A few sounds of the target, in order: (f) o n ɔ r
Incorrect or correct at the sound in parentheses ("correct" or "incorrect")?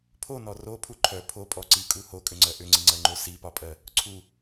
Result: incorrect